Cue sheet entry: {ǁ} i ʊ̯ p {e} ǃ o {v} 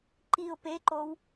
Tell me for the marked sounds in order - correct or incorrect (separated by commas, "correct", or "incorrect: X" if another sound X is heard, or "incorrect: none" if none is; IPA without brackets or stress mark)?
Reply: incorrect: ǃ, correct, incorrect: w